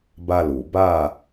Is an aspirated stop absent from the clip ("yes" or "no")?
yes